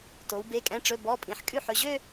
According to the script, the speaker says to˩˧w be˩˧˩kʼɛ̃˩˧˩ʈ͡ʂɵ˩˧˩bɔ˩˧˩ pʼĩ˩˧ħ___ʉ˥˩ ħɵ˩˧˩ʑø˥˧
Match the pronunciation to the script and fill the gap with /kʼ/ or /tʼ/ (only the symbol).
kʼ